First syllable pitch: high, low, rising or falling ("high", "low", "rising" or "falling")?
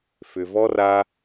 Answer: low